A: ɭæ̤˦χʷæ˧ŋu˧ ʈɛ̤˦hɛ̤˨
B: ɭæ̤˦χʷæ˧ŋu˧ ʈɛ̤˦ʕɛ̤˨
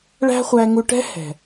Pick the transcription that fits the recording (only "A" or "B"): A